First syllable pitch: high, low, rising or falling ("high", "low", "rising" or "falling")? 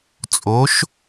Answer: rising